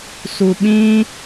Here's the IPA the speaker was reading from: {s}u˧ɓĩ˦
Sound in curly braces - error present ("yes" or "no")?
no